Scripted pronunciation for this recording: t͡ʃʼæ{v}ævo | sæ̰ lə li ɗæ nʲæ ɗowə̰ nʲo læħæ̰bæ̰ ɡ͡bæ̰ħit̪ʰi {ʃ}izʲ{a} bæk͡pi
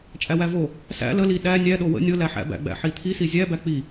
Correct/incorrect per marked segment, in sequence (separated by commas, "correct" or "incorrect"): incorrect, incorrect, incorrect